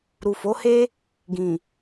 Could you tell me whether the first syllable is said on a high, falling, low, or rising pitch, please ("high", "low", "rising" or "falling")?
low